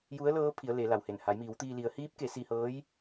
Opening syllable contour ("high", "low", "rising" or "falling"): rising